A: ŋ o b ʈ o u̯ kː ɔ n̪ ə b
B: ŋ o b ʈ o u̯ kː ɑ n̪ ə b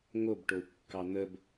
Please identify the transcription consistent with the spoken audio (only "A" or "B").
B